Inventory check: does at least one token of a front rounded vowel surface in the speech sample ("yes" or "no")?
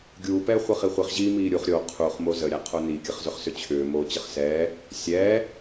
yes